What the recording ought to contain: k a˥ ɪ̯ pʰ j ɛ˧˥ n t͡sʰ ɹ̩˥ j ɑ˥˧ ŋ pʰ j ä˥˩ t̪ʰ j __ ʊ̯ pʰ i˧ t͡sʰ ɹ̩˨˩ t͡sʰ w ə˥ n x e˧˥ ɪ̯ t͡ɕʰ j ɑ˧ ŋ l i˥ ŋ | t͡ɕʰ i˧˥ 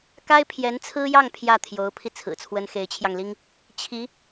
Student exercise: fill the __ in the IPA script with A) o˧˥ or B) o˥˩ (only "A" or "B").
A